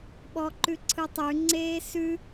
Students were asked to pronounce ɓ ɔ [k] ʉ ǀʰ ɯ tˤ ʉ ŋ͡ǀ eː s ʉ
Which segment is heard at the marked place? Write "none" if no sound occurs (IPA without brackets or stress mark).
ǃ